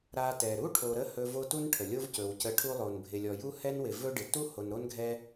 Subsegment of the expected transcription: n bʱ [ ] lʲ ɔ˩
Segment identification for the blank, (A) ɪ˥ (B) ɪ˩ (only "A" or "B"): B